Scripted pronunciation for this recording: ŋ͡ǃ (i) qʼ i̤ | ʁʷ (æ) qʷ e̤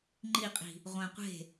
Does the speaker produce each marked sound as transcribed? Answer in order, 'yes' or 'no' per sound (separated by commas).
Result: yes, no